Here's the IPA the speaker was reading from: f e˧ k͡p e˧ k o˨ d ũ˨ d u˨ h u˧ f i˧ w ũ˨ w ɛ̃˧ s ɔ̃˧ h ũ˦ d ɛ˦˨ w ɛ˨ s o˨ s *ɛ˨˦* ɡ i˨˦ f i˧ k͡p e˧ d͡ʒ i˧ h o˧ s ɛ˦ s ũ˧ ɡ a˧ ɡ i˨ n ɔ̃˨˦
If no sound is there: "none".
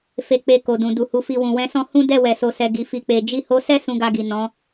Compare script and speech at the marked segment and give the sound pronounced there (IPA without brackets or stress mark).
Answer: ɛ˨